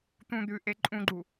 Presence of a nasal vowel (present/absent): present